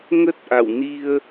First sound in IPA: ŋ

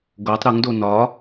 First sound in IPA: ɡ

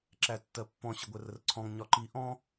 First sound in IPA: ǁ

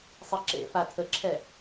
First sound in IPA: sˤ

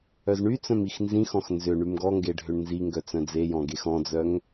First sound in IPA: œ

